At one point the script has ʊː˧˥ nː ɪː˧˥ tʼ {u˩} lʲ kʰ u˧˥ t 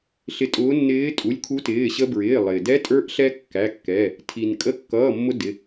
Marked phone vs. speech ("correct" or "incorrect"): incorrect